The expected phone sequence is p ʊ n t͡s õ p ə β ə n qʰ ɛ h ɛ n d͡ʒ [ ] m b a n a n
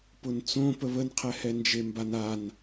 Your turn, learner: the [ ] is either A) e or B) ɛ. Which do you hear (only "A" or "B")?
A